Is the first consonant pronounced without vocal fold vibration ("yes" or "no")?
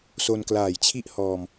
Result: yes